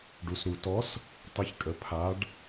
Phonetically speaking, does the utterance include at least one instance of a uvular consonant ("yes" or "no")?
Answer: no